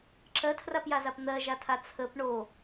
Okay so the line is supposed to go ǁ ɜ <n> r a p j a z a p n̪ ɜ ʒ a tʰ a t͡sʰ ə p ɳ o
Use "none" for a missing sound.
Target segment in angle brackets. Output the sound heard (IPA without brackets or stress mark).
tʰ